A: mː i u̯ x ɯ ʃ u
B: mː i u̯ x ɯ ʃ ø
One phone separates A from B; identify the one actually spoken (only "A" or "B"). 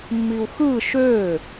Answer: B